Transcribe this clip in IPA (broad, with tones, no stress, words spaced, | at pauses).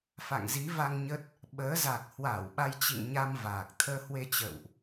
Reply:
fa̰˧˨ŋzi˨˦va˧ŋ ɲə˦˥t̚ | ɓəː˨˦za˨˩k̚ hwa˧˩w ɓa˧jt͡ɕḭ˧˨ŋɲa˧m vaː˨˩k̚ t̪ʰəː˧hwe˧t͡ɕə̰ː˧˨wʔ